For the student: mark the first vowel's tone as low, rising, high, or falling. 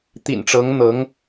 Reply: low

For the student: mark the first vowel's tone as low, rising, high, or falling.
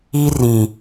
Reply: high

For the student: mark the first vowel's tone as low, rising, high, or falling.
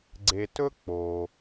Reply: low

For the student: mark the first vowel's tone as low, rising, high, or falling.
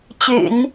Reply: low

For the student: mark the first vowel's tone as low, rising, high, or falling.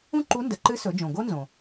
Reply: high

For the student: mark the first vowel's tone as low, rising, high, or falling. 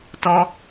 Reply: high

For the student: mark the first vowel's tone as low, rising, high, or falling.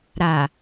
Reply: low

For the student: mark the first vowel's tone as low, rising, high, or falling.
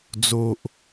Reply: low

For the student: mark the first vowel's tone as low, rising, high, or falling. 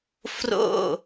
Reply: falling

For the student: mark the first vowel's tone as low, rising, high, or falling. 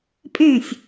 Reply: falling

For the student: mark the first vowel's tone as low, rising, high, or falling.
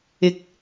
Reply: rising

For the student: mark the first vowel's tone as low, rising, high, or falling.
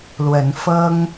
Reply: rising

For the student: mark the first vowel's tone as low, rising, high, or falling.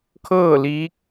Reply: falling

